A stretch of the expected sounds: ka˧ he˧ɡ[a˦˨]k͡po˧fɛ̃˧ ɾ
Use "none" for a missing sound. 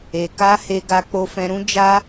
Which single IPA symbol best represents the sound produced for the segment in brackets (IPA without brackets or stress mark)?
a˧